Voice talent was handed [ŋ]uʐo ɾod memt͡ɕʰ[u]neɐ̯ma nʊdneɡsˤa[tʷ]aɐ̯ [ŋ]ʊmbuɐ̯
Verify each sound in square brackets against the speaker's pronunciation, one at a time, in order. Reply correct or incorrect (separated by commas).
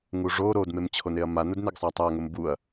correct, incorrect, incorrect, correct